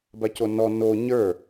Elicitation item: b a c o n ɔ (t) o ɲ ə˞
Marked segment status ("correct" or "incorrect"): incorrect